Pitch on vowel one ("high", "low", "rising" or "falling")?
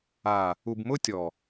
low